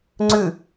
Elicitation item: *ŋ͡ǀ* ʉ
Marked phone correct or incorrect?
correct